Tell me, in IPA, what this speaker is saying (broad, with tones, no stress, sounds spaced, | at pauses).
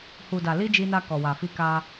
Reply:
h u˨ d a˨ l i˧ d͡ʒ i˧ n a˧ k ɔ˨ w a˨ f i˧ k a˧